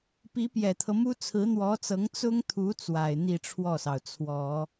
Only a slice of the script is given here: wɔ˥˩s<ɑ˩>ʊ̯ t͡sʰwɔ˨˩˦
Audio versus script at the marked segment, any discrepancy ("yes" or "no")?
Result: no